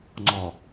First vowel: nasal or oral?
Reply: oral